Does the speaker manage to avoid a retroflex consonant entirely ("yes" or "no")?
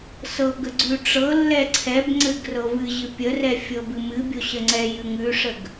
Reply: no